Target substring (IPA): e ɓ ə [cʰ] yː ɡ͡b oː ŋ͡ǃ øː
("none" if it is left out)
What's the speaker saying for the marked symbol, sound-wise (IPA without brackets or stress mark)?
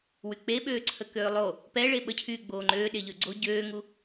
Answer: cʰ